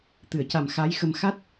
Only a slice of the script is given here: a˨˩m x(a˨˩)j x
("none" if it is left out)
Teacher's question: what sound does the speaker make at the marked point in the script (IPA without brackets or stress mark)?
a˧˥